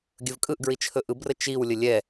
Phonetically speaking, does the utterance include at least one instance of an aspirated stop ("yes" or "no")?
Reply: yes